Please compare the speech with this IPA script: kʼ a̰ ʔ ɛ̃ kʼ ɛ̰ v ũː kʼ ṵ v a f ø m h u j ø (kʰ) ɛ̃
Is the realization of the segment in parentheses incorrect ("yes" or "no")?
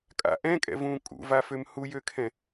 no